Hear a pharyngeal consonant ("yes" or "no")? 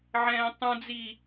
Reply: yes